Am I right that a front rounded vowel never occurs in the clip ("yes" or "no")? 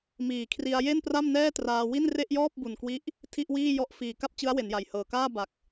yes